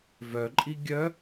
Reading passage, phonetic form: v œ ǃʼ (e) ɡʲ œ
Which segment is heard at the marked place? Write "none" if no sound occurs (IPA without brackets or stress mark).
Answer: i